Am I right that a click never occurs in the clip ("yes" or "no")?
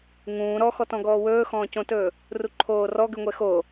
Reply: no